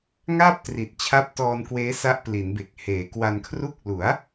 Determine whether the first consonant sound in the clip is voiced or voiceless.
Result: voiced